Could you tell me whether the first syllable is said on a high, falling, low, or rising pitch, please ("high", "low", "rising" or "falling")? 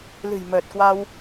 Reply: low